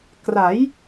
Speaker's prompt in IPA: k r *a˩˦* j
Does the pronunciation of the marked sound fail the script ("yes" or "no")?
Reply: no